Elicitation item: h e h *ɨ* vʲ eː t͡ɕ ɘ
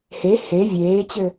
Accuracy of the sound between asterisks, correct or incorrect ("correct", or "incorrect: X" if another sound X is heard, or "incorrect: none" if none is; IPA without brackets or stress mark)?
incorrect: e